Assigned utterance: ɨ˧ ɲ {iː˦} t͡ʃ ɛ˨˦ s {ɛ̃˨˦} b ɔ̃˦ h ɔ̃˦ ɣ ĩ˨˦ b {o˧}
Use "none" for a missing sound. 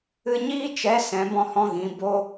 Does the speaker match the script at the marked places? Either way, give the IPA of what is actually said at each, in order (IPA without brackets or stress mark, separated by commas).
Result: iː˦, ɛ̃˨˦, o˦